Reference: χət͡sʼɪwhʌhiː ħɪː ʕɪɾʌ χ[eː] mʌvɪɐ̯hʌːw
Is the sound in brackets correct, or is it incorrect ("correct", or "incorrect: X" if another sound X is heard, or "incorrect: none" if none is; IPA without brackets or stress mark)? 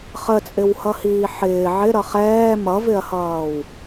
incorrect: ɛː